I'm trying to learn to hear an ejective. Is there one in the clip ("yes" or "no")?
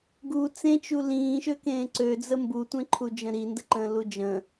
no